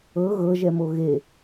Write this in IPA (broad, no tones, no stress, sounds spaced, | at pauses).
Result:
ɤ ɣ ɤ ʒ ɛ m o ɣ e